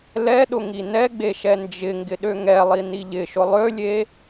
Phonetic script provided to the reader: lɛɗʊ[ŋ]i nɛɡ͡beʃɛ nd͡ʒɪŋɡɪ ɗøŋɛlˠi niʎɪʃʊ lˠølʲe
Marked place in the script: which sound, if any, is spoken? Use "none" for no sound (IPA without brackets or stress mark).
ŋ